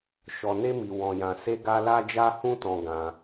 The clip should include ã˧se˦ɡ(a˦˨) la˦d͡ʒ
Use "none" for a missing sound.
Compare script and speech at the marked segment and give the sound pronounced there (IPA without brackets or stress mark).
a˦